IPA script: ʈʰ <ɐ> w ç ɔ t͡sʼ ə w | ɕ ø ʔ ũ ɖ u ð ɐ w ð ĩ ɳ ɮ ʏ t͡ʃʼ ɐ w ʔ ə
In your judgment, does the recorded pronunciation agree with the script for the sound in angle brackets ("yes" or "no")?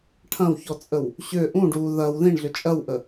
no